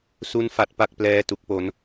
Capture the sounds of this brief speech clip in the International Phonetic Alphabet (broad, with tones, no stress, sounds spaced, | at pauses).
s u˥˩ n f a˦˥ t̚ p a˥˩ k̚ p l ɛː˥˩ t u˦˥ k̚ p o˦˥ n